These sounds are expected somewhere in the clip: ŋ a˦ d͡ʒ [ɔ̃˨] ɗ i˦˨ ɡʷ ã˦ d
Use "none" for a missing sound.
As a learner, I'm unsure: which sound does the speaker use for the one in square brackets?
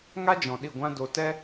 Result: ɔ̃˨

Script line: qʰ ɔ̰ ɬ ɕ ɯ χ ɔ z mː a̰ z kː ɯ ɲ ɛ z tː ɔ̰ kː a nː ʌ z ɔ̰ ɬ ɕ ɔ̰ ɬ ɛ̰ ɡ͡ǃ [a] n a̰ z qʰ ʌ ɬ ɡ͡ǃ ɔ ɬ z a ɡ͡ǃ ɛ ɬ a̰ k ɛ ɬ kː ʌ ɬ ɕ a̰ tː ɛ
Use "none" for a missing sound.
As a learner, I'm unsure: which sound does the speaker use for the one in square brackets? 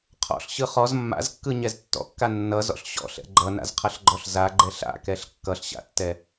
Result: ʌ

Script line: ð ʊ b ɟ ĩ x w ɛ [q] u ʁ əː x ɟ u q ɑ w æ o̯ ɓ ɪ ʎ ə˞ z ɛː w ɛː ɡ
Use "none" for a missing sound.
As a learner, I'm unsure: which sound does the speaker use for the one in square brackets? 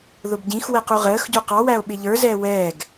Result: q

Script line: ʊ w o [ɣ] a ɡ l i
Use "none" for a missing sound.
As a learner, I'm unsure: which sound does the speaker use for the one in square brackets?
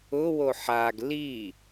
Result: ħ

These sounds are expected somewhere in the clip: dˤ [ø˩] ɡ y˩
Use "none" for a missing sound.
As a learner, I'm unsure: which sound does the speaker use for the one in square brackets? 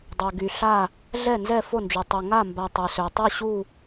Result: ø˩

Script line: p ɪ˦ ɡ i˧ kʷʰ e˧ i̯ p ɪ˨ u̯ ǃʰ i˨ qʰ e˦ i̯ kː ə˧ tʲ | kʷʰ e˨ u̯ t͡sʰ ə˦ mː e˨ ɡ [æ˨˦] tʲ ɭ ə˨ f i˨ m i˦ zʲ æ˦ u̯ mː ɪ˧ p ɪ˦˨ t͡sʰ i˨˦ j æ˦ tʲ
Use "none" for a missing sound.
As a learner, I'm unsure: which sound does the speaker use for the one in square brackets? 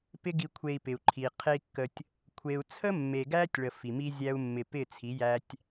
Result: æ˦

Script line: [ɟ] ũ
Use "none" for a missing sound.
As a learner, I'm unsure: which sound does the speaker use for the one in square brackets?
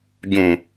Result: ɟ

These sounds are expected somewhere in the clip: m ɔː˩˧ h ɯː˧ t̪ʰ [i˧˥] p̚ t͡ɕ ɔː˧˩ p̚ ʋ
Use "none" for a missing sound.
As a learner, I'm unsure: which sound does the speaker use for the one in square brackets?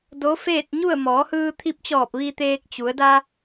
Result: i˧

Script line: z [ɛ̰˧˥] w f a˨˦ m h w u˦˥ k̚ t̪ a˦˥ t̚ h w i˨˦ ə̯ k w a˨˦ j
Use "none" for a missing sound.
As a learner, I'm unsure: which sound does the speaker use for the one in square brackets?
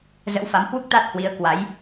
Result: ə̰˧˥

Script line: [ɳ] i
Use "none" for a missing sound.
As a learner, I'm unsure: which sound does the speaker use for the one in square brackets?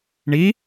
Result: ɳ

